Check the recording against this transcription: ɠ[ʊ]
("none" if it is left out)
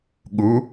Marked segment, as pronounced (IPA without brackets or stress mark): u